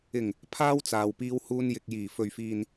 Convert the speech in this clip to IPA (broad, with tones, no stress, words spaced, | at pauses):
ɪ˨˩ŋ | pʰaː˥wt͡saː˨wpiː˧whuː˧n jɪ˨k̚jiː˨˩ fɵ˨ɥfiː˨n